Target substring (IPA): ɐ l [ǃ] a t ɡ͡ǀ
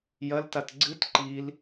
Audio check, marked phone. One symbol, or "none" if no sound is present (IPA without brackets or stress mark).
t